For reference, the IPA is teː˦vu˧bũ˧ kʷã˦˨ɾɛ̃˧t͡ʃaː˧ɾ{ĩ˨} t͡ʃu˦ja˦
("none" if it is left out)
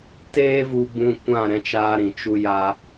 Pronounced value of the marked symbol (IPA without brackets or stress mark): ĩ˨